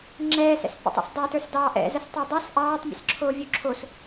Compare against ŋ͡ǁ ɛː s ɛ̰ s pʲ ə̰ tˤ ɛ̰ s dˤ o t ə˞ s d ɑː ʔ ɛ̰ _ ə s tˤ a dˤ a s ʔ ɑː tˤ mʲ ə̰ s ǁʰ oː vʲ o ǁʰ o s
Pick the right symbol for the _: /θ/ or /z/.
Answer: z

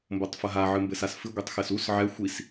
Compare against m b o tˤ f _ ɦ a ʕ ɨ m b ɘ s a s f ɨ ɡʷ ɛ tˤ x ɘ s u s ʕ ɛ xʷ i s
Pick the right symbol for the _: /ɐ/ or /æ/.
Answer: ɐ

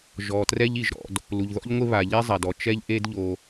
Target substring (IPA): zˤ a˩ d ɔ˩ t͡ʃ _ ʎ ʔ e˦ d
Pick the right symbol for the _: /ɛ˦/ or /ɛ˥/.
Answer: ɛ˥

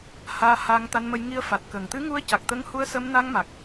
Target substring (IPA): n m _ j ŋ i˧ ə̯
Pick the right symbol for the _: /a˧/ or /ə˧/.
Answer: ə˧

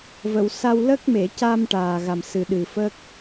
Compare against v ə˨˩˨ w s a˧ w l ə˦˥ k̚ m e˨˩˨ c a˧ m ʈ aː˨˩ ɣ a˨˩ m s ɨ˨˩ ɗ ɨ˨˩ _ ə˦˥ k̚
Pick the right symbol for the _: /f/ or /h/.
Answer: f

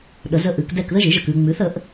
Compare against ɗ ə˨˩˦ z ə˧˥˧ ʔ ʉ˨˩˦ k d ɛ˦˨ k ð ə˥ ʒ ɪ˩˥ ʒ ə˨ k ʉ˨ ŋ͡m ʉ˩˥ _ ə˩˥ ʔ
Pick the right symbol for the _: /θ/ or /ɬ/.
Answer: θ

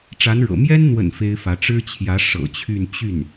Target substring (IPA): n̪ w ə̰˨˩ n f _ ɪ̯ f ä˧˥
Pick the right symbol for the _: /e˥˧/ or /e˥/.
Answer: e˥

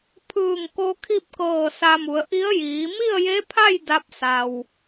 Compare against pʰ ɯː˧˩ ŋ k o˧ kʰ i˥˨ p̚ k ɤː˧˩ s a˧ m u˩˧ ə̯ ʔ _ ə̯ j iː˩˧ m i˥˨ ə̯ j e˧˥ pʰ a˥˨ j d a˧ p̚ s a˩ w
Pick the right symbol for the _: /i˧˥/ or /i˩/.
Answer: i˧˥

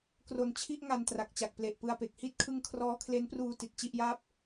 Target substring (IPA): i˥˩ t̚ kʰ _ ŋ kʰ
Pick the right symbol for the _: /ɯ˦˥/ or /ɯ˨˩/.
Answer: ɯ˦˥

